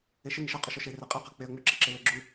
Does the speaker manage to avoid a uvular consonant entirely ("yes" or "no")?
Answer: no